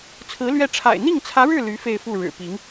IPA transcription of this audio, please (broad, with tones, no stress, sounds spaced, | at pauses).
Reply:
t͡sʰ ɹ̩˧˥ l ɥ ɛ˥˩ ʈ͡ʂʰ a̰˨˩ ɪ̯ n̪ i˥˩ ŋ t͡sʰ ä˧˥ ɻ ɻ̩˥˩ l y˧˥ f e˥˧ ɪ̯ f u˥˩ ɻ ɻ̩˨˩ p i˧˥ ŋ